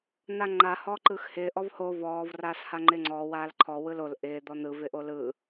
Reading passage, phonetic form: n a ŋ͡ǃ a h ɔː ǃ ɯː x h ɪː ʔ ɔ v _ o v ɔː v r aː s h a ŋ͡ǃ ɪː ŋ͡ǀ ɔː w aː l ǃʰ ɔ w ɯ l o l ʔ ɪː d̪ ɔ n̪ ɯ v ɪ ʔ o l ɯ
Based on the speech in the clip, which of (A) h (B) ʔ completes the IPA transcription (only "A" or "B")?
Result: A